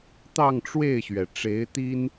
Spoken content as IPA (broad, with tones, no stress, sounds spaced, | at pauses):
t̪ ɑ˥˧ ŋ ʈ͡ʂ w e˥˩ ɪ̯ ɕ ɥ ɛ˩ ʈ͡ʂ e˧˥ ɪ̯ t̪ i˥ n